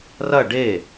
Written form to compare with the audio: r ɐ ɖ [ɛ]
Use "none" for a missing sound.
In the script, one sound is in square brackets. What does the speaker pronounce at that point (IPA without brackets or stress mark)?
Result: e